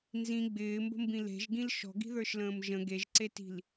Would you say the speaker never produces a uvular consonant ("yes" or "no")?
yes